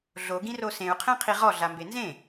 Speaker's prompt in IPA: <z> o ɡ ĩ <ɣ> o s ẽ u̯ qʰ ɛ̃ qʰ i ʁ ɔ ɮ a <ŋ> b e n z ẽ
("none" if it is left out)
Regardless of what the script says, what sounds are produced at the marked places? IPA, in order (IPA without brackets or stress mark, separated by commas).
ɮ, r, m